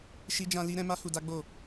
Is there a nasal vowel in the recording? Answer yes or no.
yes